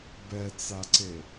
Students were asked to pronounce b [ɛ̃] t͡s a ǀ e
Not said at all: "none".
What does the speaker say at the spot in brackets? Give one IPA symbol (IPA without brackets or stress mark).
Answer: ɛ